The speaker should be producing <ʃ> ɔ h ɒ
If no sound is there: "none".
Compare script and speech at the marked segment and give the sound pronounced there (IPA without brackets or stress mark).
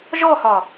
ʒ